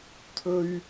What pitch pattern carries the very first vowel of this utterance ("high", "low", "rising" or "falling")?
low